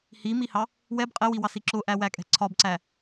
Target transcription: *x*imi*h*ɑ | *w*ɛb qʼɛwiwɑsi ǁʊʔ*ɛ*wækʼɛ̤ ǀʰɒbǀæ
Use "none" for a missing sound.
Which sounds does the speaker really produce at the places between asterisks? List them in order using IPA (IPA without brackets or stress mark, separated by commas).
h, h, w, æ